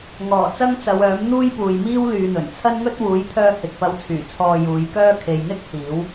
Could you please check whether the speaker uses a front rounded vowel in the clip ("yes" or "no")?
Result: yes